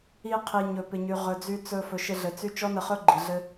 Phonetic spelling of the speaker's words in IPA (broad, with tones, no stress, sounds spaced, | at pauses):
i˧ qʰ i˨ ɲ ɵ˨ p ɪ˨ ɲ y˨ ʁ ɵ˨ d͡z y˧ t͡s ɵ˧ f ɵ˨ ʃ ɪ˧ ɮ ɘ˨ t͡s y˦ t͡ʃ ɔ˦ n ə˧ χ ɵ˦ ɡ͡ǃ i˨ ɮ ɘ˦